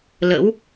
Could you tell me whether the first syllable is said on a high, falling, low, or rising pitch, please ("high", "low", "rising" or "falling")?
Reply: rising